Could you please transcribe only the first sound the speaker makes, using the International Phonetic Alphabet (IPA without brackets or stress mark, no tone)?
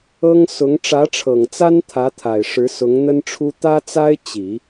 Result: ɤ